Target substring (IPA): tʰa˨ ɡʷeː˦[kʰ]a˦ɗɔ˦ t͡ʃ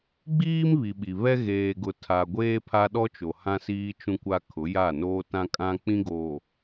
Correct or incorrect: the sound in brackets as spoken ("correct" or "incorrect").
incorrect